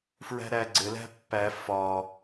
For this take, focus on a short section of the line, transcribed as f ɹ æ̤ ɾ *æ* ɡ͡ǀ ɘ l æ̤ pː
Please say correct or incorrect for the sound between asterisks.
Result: correct